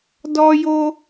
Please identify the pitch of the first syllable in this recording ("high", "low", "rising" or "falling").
high